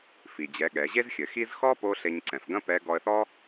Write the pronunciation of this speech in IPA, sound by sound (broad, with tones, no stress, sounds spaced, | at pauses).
f i˩ d͡ʑ ɛ˩˧ ɠ ɛ˩˧ ʑ e˥ z xʲ ɘ˩˧ x i˥ z x ɔ˥ p o˥ ɬ e˧ ɲ ǀ ɛ̃˩ f ɡ ɐ̃˥ p ɛ˧˥ ɡ ɔ˧ ə̯ θ ɔ˥